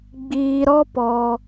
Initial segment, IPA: ɡ͡b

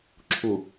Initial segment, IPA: ǁʰ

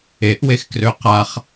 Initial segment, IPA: e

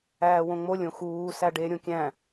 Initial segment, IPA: æː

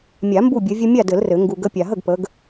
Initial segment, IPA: mʲ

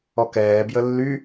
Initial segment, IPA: ɔ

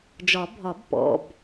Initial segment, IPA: d͡ʒ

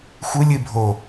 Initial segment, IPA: xʷ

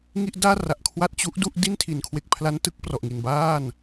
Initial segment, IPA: ŋ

